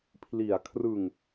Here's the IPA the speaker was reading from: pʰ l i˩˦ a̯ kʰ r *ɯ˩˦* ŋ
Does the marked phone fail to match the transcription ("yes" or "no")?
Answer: yes